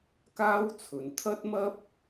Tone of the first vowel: high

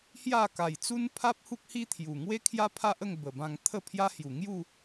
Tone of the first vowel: falling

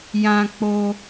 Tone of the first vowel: high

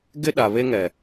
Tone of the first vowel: high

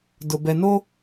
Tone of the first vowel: low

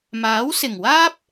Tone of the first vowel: rising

